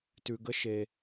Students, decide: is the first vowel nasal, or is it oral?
oral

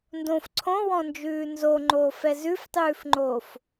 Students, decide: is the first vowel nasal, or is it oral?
nasal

